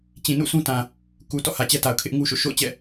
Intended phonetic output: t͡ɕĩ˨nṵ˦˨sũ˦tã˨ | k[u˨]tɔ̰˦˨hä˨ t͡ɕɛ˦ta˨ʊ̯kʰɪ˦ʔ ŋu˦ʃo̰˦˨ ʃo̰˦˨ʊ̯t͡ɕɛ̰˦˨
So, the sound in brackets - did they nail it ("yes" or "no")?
yes